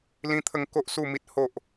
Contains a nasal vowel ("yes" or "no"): yes